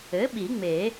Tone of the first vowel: rising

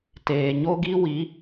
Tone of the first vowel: low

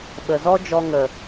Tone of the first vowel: low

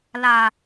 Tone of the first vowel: low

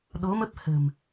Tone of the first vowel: rising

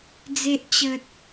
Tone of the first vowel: high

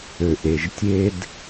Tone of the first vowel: low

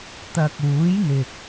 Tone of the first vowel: low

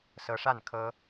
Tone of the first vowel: rising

